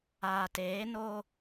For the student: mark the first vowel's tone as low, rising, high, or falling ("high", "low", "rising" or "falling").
low